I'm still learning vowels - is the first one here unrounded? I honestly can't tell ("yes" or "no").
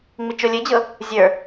yes